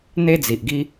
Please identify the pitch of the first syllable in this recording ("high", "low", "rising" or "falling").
high